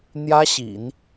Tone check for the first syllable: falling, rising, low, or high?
high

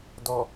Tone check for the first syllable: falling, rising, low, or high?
low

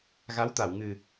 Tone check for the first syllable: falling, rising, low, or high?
rising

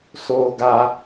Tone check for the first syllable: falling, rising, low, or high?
high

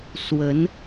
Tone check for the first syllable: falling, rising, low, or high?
rising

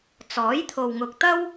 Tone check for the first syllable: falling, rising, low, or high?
rising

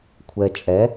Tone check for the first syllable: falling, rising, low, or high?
low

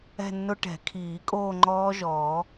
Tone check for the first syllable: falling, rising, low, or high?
falling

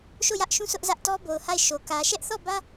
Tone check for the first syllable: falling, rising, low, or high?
falling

